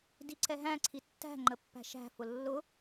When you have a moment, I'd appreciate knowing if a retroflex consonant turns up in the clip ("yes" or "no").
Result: no